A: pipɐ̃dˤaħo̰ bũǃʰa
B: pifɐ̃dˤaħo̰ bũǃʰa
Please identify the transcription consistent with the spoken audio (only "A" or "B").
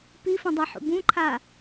B